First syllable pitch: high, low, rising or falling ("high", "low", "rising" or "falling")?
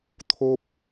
high